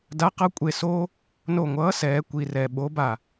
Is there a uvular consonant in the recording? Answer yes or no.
yes